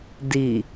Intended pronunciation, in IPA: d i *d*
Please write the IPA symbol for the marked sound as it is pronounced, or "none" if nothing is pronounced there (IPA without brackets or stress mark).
none